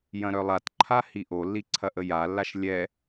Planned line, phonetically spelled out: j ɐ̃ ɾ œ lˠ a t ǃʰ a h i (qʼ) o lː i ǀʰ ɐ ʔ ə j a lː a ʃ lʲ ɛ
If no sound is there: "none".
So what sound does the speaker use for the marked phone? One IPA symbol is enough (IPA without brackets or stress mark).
ʔ